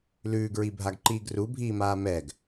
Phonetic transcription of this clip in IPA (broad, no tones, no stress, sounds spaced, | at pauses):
l ʉː ɡ ɹ i bʱ a ɡ ǃ iː ɡ r u bʱ iː m aː m ɛ ɡ